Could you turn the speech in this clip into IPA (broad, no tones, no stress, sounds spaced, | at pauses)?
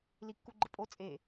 l i kː u ɡ͡ǃ ə pʼ o t͡sʼ e